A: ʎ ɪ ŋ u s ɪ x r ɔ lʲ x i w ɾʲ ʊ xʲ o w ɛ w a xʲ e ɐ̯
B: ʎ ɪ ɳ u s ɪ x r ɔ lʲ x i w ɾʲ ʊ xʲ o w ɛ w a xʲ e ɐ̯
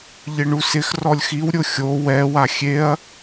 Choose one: B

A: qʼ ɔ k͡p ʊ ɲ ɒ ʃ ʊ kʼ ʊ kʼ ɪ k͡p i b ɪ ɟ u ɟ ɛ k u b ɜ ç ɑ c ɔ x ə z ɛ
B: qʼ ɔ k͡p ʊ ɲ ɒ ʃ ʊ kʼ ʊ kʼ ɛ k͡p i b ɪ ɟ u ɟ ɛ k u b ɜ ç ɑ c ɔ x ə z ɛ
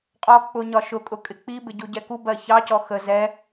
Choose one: A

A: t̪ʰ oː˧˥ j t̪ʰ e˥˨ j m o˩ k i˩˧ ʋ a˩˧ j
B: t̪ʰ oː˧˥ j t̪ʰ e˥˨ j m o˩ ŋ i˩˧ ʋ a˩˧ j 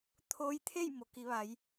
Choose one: A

